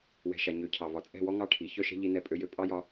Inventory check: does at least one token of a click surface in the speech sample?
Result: no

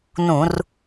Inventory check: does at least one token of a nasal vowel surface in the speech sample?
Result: yes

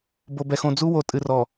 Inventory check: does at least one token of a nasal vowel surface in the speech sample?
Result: yes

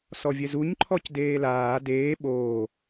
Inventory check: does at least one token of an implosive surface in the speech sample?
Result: yes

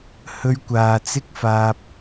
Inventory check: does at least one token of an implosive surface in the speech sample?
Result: no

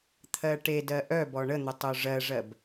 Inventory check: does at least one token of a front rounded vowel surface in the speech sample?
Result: yes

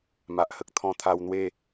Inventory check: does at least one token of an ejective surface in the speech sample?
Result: no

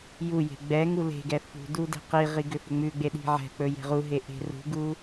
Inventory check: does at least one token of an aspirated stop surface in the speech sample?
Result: no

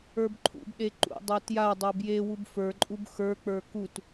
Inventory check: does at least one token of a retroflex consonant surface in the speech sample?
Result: no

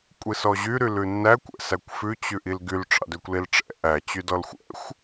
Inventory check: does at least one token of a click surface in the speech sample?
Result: no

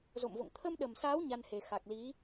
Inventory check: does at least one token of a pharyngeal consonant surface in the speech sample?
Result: no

